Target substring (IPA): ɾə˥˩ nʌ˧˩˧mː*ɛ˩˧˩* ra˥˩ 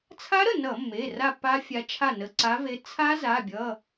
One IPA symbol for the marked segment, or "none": e˩˧˩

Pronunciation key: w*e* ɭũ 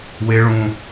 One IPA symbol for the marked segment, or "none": e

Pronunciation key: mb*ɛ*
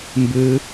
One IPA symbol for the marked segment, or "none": ɨ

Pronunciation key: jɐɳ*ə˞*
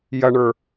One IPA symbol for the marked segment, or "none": ə˞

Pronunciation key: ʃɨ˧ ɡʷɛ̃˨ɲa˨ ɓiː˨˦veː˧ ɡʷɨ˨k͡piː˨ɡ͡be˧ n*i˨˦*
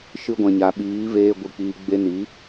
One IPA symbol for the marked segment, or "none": i˨˦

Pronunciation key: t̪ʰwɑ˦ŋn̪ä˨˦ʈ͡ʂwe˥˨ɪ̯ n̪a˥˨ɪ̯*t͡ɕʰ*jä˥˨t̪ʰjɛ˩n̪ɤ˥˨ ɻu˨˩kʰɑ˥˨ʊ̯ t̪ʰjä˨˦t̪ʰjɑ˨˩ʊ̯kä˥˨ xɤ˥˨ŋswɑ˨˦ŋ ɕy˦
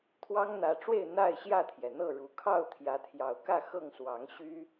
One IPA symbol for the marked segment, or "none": ɕ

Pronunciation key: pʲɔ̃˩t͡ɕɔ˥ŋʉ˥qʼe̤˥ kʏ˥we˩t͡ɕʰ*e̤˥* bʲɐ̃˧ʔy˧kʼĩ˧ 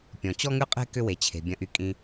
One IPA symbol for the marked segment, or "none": e̤˩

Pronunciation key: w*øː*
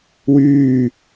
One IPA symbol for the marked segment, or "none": yː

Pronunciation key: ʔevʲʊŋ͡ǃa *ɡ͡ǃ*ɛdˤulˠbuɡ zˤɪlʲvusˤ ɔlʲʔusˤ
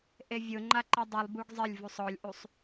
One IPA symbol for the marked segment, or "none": ǃ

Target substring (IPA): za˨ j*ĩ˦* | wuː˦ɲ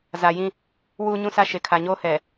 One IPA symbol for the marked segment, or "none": ĩ˦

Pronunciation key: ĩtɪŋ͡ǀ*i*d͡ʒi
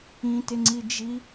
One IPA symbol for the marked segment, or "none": i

